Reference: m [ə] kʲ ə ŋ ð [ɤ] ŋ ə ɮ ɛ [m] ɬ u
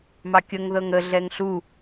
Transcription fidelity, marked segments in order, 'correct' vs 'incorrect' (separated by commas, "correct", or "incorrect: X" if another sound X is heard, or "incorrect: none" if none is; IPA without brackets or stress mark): incorrect: ɑ, correct, incorrect: ŋ